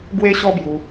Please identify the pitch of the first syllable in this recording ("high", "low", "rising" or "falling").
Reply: high